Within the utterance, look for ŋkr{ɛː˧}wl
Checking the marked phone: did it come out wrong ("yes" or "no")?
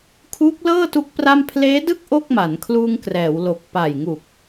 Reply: yes